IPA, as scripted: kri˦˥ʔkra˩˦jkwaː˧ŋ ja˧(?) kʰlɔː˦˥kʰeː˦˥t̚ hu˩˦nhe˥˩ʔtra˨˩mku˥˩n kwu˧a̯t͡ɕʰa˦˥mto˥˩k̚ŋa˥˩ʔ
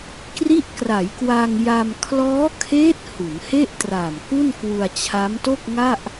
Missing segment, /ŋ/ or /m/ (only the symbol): m